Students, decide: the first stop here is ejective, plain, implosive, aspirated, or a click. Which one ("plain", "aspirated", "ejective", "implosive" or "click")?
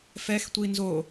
plain